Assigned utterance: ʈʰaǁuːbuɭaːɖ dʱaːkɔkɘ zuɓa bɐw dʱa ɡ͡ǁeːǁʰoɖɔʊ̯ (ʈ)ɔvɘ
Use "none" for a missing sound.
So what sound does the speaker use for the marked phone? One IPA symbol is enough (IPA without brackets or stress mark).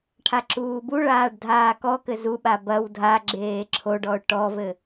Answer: ʈ